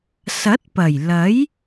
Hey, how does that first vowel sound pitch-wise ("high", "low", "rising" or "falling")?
rising